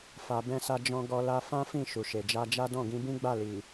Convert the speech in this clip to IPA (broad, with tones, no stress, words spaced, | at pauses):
fa˧ bɛ̃˦sa˦ d͡ʒɔ̃˦ ɡɔ˧la˧ fã˦fĩ˦˨ ʃu˨ʃe˨d͡ʒa˧d͡ʒa˦ dɔ̃˦˨ɡĩ˧ bĩ˦ɡ͡ba˦˨ li˨